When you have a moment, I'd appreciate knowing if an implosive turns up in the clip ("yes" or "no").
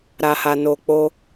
no